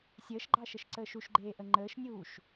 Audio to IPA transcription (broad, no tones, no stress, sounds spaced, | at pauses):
sʲ əː ʃ ɡ͡ǃ ɑ ʃ ə ʃ ǀ əː ʃ u ʃ ɡ͡ǃ eː ʔ ə ŋ͡ǃ əː ʃ nʲ uː ʃ